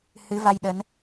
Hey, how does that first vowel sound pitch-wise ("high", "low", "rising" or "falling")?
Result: rising